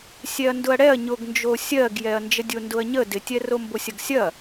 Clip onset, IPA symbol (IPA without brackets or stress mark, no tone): sʲ